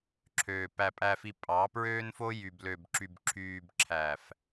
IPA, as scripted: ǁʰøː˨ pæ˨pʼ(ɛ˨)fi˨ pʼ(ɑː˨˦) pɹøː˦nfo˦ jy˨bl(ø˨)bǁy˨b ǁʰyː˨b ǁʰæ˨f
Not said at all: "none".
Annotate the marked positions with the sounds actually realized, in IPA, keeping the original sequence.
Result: æ˨, ɑː˨˦, ø˨

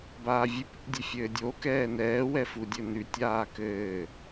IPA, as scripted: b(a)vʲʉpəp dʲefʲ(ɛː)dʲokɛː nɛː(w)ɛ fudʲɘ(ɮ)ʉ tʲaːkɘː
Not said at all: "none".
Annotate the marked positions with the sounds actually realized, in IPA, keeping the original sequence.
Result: aː, ɘː, w, n

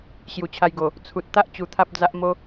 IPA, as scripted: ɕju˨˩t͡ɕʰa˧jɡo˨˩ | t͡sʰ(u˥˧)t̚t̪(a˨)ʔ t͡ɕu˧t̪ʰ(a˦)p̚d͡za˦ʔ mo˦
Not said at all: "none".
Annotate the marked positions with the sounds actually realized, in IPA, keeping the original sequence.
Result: u˨, a˦, a˦

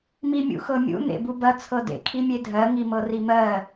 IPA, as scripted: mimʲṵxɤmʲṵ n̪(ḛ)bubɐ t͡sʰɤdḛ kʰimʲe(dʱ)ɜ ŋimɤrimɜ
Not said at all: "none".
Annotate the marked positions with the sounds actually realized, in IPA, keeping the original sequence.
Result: ḛ, dʱ

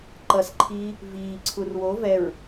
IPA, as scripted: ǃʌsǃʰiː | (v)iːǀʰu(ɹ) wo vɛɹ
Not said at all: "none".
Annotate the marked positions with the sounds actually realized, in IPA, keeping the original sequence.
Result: v, r

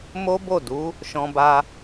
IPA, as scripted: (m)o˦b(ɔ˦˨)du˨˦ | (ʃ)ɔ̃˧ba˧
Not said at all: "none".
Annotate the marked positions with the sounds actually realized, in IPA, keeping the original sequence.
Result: m, o˦˨, ʃ

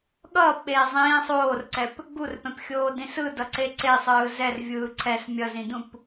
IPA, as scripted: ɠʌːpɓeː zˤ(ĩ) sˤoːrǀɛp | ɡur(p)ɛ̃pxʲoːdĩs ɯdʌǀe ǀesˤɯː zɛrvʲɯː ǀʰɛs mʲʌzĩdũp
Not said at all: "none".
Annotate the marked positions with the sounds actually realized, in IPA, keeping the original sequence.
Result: ĩː, p

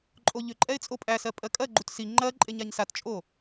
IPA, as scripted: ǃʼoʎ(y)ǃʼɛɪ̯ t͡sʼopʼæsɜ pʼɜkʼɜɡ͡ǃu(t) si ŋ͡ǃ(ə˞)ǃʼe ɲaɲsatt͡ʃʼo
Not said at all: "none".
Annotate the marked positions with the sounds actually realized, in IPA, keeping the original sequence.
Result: ʏ, t, ɜ

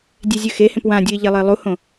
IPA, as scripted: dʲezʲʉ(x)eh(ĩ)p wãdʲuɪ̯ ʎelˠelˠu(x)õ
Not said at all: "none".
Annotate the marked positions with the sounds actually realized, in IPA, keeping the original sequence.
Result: x, ẽ, h

